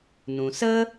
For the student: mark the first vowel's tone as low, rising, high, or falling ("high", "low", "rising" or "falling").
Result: low